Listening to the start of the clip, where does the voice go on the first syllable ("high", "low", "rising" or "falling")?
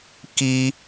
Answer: high